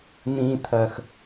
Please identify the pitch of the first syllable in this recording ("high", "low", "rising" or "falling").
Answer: low